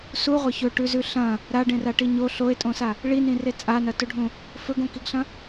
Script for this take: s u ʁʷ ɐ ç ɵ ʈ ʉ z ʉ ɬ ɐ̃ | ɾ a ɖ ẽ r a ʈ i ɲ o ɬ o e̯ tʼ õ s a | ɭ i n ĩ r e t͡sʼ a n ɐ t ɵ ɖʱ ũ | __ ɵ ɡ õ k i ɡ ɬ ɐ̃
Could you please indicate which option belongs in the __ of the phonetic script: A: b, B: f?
B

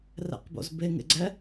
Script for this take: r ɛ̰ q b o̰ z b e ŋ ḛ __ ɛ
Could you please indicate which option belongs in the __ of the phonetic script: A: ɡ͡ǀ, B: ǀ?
A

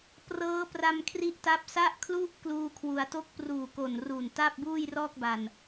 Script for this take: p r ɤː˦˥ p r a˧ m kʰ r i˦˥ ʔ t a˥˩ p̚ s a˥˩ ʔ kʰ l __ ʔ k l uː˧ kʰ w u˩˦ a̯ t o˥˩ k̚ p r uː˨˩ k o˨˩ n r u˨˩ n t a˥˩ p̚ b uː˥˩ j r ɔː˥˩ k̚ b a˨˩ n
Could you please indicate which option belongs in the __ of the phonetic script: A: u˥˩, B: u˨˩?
A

